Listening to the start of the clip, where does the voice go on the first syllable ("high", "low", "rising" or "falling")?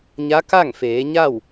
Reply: rising